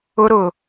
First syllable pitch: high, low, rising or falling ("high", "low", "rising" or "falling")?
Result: high